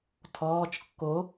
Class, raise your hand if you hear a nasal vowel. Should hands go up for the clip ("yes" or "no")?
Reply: no